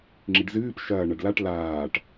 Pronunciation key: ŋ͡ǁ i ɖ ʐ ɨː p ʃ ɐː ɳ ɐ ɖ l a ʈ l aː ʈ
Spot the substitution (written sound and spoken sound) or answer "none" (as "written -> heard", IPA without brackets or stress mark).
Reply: ʐ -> z